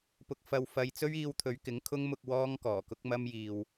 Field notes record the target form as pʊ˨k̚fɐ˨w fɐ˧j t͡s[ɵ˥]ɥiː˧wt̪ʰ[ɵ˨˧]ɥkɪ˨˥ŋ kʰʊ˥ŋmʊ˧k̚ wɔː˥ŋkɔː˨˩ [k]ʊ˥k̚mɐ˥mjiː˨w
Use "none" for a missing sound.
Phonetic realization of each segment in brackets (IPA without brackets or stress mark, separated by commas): ɵ˥, ɵ˨˧, k